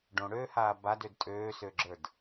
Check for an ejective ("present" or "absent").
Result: present